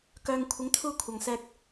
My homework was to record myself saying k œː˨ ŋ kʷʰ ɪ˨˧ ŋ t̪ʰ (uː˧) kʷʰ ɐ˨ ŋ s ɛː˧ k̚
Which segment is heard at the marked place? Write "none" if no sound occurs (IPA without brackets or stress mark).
uː˧